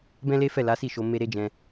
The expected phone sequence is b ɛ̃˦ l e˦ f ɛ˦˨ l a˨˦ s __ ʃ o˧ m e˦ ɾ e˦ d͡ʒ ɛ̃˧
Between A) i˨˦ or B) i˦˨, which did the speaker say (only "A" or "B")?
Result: B